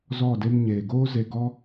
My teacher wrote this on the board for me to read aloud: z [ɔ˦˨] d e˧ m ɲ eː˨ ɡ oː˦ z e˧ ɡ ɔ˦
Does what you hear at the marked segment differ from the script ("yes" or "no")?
no